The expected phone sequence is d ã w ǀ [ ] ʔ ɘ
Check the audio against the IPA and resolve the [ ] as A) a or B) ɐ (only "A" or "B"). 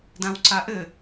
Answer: A